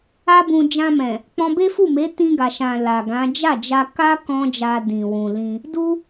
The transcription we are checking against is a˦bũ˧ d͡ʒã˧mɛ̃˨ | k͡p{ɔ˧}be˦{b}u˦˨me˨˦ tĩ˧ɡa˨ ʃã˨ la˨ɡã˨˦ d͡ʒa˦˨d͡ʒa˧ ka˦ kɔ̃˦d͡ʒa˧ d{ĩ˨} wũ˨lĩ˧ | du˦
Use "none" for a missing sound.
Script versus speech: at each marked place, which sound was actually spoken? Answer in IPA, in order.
ɔ̃˧, f, ĩ˨

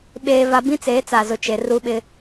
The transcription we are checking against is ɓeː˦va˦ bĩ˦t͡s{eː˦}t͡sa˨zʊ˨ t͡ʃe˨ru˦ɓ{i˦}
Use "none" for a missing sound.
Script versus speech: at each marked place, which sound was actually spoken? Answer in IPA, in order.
eː˨˦, ɪ˦

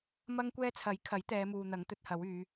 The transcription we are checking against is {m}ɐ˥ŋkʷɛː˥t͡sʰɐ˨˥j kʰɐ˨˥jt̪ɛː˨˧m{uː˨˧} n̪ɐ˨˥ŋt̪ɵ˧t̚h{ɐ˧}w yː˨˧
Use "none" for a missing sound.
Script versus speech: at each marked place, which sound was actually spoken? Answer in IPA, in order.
m, uː˨, ɐ˨˥

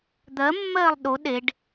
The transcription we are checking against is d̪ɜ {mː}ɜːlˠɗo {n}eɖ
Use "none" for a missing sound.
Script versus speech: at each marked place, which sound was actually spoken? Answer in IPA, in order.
mː, ɗ

